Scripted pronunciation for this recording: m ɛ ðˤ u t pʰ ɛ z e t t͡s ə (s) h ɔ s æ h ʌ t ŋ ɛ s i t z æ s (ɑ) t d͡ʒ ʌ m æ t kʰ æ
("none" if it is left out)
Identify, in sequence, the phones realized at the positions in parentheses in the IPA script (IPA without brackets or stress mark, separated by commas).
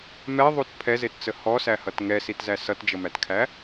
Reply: none, ʌ